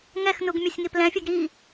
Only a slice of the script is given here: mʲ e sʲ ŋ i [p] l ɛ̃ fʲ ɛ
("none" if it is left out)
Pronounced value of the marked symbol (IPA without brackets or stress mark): p